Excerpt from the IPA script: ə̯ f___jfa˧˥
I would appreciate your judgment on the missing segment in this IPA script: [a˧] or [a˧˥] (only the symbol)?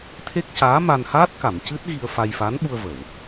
a˧